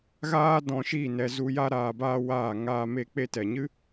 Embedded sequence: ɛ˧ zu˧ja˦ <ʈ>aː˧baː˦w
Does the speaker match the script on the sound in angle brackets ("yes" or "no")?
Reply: no